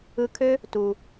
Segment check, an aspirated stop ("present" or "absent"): present